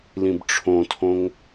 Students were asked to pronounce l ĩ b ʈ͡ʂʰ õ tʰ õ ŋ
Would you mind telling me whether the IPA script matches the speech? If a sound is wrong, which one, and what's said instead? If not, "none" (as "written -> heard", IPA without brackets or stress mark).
none